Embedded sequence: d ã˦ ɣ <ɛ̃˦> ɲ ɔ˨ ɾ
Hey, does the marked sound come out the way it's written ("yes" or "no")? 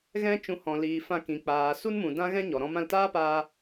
yes